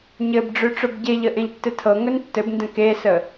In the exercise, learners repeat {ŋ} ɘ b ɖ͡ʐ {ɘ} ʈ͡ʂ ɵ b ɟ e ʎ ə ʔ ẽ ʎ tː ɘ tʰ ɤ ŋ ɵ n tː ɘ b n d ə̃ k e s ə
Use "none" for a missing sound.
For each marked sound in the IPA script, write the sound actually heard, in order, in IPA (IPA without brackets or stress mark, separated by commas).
ɲ, ø